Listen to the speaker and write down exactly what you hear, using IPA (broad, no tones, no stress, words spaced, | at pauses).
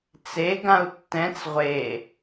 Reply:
t͡seɡãu̯ tːɛ̃t͡s ʁʷe